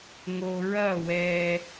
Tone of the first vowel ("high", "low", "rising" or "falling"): low